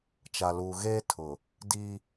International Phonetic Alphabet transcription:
t͡ʃ a˨ l uː˨ ɣ eː˦ tʰ ʊ˨ | d i˦

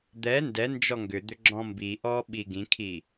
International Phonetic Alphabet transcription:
d̪ ɛ n d ɛ n d͡ʒ ɔ ŋ ɡ ʏ d̪ ʏ ɡ͡ǁ ɔ̃ m b i ʔ ɔː ɓ i ɡ ĩ kʰ i

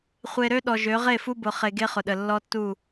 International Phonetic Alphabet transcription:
χʷ e˨ ɾ ø˦ ɗ ɔ˨ ʒ ø˨˦ ʁ e˦˨ f u˦ b ʊ˨ χ e˨ ɡ e˦ χ ʊ˨ ɗ ə˨ lː ɔ˦ tː u˦˨

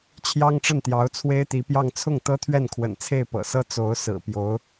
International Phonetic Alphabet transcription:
t͡ɕʰ j ɑ˥ ŋ ʈ͡ʂ ə˥˩ n t̪ j ɑ˧˥ ʊ̯ t͡sʰ w e˥ ɪ̯ t̪ i˧˥ p j ɑ˥˧ ŋ t͡sʰ ʊ˥˩ ŋ t̪ ɤ˥ t̪ʰ ɥ ɛ˥˩ n kʰ w ə̰˨˩ n t͡sʰ e˥˩ ɪ̯ p ɤ̰˨˩ s ɤ˥ t͡s o˧˥ ʊ̯ s ɹ̩˨˩ p j o˧˥ ʊ̯

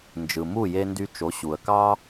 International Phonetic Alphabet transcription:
n d͡ʒ ɯ˩ m u˥˩ j e˧ n d y˧ t͡ʃ o˩˥ ɕ u˩ ə̯ k ɑ˥

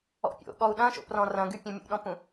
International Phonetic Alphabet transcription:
ɔ̰ pʲ o̰ ɠ ɔ u̯ ɗ ɐ̃ ʃ o̰ p r ɔ̃ r ɐ̃ ɡ y pʲ ɐ̃ mʲ ṵ ɗ ɔ̃ p ũ

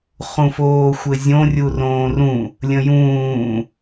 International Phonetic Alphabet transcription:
χ ũ f oː xʷ ɘ zʲ õ rʲ u r õː r ũ | lʲ ə̃ j ũː

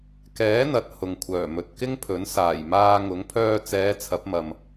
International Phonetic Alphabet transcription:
k ɛː˨˥ n̪ ɐ˨ t̚ h ʊ˨ ŋ kʷʰ œː˨˩ m ɵ˨ t̚ k ɪ˥ ŋ pʰ ɵ˨˥ n s aː˨˩ j m aː˧ ŋ ʊ˨˥ ŋ pʰ œː˧ t͡s ɛː˨˧ t͡sʰ ɐ˨˥ p̚ m ɐ˨ m

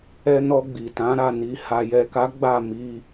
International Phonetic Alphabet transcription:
ɛ˧ n ɔ˧ ɡ͡b i˨ t ã˨˦ ɾ a˦˨ n i˧ h a˨ j ɛ˨ k a˨˦ ɡ͡b a˦˨ m i˧

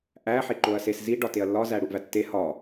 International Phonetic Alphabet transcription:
ʔ æ ħ e ǃ o ɐ̯ s e s z i ɖ ɒ t e ɐ̯ lː ɒ z æ ɽ u ʔ v æ tː e h ɒ

